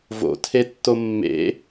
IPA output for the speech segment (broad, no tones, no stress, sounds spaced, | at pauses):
v o̰ tʰ e tː o mː ḛ